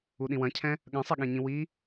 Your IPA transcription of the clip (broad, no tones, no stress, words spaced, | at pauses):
uɗĩwɐ̃cʰɛ̃ | ɠɐ̃sˤɛɠẽɲĩ wi